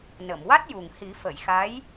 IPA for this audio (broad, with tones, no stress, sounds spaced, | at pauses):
n ə˨˩˨ m w a˦˥ t̚ j u˨˩ ŋ h i˨˩˦ f ə˨˩˨ j x a˧˥ j